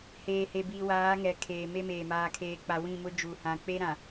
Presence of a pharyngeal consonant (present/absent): absent